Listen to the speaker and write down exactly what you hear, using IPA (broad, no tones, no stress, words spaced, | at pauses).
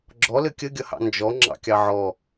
ɡ͡ǁɔ lɘkʲəɡʲʌhɑ̰ nd͡ʒɔ ŋ͡ǁɑ̰kʲɑʕɔ